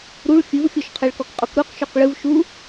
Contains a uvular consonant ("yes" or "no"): yes